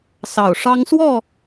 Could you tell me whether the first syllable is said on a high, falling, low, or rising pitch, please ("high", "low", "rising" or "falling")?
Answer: low